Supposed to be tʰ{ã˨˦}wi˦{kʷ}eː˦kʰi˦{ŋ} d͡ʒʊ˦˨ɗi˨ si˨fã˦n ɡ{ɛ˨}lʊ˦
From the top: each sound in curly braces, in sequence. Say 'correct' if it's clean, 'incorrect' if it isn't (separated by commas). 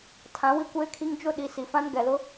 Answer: correct, correct, correct, correct